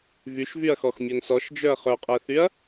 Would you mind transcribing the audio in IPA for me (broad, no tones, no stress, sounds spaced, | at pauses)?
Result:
v y ʃ v y ɐ̯ x ɔ x mʲ œ n s ɔ ʃ d͡ʒ œ ɐ̯ χ œ qʼ ɛ θ y ɐ̯